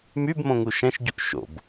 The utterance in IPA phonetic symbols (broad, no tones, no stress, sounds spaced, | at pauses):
m y b m õ ŋ u ʃ ɛ̃ ʃ ɟ u ʔ ʃ o̰ b